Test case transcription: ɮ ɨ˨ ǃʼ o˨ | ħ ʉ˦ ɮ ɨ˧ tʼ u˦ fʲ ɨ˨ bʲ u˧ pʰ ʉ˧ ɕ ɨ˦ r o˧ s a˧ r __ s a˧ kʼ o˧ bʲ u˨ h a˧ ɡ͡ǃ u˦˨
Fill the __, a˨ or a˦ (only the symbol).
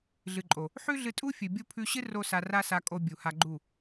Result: a˦